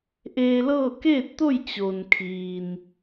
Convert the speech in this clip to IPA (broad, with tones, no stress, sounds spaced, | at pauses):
ʔ eː˧ l ɤː˥˨ k eː˥˨ t̚ t̪ o˥˨ j t͡ɕ o˩ n kʰ iː˩ n